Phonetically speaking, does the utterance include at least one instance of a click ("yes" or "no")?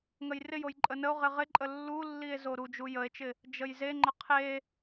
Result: yes